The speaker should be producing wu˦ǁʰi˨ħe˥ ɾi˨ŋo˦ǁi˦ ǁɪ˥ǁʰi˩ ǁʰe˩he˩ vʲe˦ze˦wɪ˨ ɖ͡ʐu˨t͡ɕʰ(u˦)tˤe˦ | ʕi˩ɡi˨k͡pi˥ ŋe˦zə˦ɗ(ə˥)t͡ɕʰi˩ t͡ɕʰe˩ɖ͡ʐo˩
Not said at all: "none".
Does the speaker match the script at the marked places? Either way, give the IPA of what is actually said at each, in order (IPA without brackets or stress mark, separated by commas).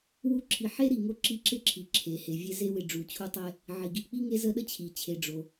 u˦, ə˥